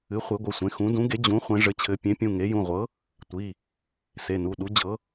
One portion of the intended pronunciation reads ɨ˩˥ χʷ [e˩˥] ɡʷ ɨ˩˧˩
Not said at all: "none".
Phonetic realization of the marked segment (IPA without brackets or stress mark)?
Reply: e˩˥